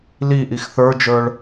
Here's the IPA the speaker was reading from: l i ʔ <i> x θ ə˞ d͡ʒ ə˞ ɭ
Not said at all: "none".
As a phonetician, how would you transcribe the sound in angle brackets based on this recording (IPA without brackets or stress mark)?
i